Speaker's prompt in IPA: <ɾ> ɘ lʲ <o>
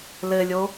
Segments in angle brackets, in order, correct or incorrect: incorrect, correct

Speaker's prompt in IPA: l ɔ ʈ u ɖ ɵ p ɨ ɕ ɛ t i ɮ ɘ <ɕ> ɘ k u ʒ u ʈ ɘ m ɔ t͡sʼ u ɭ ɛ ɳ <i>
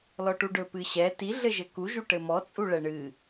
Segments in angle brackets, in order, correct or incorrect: incorrect, incorrect

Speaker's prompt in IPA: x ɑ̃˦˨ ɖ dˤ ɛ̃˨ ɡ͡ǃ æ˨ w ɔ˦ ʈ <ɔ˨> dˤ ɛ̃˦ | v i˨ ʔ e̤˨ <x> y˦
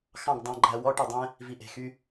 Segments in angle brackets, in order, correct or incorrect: incorrect, correct

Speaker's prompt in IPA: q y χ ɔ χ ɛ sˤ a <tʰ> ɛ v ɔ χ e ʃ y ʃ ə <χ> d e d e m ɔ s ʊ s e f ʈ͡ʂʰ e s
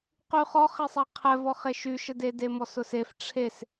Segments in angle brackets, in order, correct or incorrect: incorrect, incorrect

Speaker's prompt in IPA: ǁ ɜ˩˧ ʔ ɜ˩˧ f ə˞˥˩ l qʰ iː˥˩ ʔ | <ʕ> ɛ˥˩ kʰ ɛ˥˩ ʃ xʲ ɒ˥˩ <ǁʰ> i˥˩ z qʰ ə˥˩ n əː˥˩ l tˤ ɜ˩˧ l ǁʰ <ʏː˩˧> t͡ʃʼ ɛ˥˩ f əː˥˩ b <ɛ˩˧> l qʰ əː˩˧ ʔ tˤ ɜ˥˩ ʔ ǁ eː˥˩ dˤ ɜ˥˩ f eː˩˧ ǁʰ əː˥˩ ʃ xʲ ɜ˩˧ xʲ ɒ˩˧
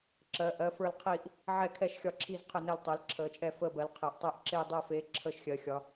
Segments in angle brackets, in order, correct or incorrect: correct, correct, incorrect, incorrect

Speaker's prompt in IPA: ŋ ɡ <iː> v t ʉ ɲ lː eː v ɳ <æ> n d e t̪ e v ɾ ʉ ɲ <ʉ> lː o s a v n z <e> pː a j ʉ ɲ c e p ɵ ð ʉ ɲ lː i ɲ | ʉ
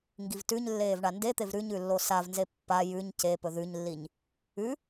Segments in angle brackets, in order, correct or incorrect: incorrect, incorrect, correct, correct

